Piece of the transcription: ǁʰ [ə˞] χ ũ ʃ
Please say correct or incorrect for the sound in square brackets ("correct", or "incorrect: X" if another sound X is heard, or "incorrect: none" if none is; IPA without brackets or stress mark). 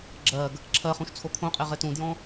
incorrect: ɜ